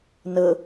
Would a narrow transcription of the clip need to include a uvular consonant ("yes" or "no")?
no